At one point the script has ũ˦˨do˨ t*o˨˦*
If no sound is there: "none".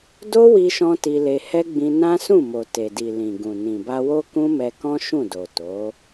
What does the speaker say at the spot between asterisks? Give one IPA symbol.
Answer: o˨˦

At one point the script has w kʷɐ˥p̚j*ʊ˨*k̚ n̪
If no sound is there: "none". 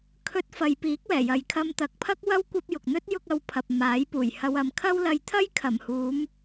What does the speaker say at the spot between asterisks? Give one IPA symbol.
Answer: ʊ˨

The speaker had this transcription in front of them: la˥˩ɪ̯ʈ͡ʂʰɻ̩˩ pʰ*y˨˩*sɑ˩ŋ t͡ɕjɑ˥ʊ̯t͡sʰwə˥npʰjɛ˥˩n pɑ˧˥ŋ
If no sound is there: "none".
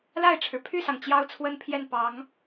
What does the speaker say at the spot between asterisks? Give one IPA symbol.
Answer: y˥˩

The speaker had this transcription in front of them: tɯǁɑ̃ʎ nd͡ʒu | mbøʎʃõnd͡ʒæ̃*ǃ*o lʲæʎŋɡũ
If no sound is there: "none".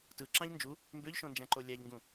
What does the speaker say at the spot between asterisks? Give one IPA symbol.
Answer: ǃ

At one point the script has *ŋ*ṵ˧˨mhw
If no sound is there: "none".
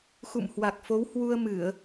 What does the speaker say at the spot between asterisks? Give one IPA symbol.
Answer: x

